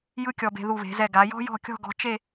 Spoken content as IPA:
j ɯ˥ kʲ ɔ˧ b e̤˧ ð u˧˩ β e̤˩˧ z ɛ˧˩ ɡ a˩˧ j ɔ̤˥ j ɔ̤˥˧ kʲ ɔ̤˥˧ ɡ ɔ̤˧ t͡ʃ e˥˧

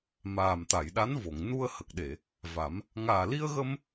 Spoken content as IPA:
m aː˨˩ m t̪ a˨˩˨ j ɗ a˧˥ n v o˨˩˨ ŋ n u˧ ə̯ h ə˨˩ k̚ ɗ e˨˩˨ | v a˨˩˦ m | ŋ aː˨˩ l i˧ ə̯ ɣ ə˧ m

